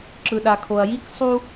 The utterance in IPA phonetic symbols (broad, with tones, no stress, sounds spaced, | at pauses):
ǁ ɯ˨ ɗ a˨ kʰ o˨ ɐ̯ j i˦ k sˤ u˦